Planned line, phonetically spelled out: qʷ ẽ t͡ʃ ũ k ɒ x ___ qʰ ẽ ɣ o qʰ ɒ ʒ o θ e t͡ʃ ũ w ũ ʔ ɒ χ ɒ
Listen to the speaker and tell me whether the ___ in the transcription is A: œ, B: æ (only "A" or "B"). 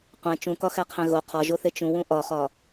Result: B